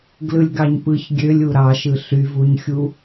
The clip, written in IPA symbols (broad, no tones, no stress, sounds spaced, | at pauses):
ɡ l ɯ lʲ ɡ ɑ ɲ p ɯ ç ɡʲ ø lʲ u ɾ ɑ ʃ ɯ ɬ y v u ɲ xʲ u